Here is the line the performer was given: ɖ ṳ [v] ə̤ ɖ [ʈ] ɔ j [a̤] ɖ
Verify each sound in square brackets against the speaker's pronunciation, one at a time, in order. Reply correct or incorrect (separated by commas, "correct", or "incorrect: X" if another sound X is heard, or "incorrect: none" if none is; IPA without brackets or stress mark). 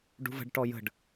correct, correct, incorrect: ə̤